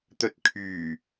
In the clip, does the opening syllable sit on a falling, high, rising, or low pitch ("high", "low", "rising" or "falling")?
low